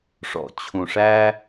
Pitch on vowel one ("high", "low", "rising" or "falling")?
low